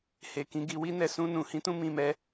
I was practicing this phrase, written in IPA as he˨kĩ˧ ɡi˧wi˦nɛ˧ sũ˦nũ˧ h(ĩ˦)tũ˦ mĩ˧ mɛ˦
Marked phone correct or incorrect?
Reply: correct